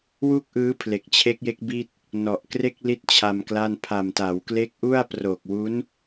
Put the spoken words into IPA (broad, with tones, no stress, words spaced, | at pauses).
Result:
wu˥˩k̚ʔɯː˦˥ pʰle˨˩k̚t͡ɕʰe˦˥k̚je˦˥k̚ bi˥˩t̚ | nɔ˨˩ʔkre˥˩k̚li˦˥t̚ t͡ɕʰa˧mkla˥˩n pʰa˨˩mta˩˦wkle˦˥k̚ʔu˥˩a̯ pro˨˩k̚wu˦˥n